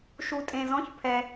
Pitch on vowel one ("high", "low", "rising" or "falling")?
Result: low